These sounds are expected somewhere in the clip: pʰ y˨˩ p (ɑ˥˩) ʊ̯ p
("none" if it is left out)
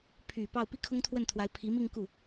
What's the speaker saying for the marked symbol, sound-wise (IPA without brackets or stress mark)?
ɑ˥˩